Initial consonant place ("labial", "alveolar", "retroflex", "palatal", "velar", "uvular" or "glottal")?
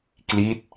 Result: velar